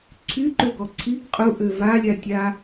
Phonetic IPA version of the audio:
ǀʰ y ǃ ø ɡ ɔ ǀʰ i ɡ qʼ u ʔ ø v a lʲ a tʲ a

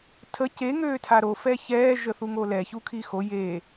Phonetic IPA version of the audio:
tʰ ə c e ŋ øː tʰ a ɾ o f ɛ ç ɛː ʒ ə θ u ŋ o l ɛ ç u kʰ i x o j e

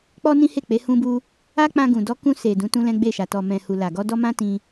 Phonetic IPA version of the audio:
k͡p ɔ˦ n ĩ˦ h e˦˨ k͡p e˨˦ h ũ˦ b u˦ | a˦ k͡p ã˧ ɡ ũ˨ d ɔ˧ k ũ˧ s e˨ d ũ˨˦ t ũ˦ l ɛ̃˦ ɡ͡b e˦˨ ʃ a˨ t ɔ˨ m ɛ̃˨ h u˨ l a˨ ɡ ɔ˧ d ɔ˦ m ã˦ t ĩ˧

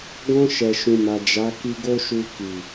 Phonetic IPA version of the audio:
ɡ ɔ̃˧ ʃ ɛ˨ ʃ ũ˨ m a˨ d͡ʒ a˨˦ k i˧ ɡ o˦ ʃ u˧ k i˨

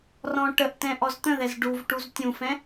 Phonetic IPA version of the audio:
r ɔ̃ ʈ ə ʔ t ɛ̃ ʔ ɔ z t̪ ə̃ ð ɛ z ɖ u v ʈ u z tʲ ũ f ɛ̃

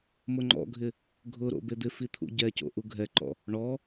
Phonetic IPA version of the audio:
m ʊ ŋ͡ǃ ɔ̰ ɡʱ ɪ | ɡʱ ʊ ɾ o̰ b e d̪ ɪ f i t̪ʰ ṵ ɟ ɛ c o̰ ʔ u ɡʱ ɛ ǃ ɔ̰ | ɳ ɔ

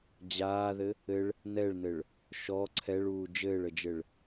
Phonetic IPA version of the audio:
d͡ʑ aː ð ɘ | ɘ ɭ | n ɛ ɭ n ɘ ɭ | ʃ ɔ ǀʰ ɛ ɭ uː d͡ʒ ɘː ɭ ə d͡ʒ ɘ ɭ

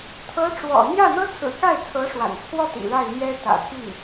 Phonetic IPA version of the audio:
t̪ʰ ɤ˧˥ ʈ͡ʂ w ɔ̰˨˩ n̪ j ä˥˩ n̪ ɤ˥ t͡sʰ ɹ̩˨˩ k a˥˩ ɪ̯ t͡sʰ ɤ˧˥ ʂ w a̰˨˩ n t͡sʰ w ɔ˥˩ t̪ ḭ˨˩ ɻ a˥˩ ɪ̯ n̪ j ɛ˥ t̪ ä̰˨˩ t̪ʰ i˥˩ ŋ

